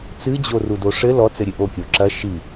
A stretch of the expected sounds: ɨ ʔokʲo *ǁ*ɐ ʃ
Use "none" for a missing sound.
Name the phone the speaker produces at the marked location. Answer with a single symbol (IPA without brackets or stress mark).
ǁ